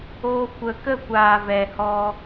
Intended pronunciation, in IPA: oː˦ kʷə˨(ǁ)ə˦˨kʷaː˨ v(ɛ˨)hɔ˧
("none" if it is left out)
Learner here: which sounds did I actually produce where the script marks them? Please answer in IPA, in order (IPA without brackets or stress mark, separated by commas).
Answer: k, ɛ˨